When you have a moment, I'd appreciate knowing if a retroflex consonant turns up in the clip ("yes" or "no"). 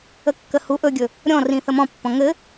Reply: no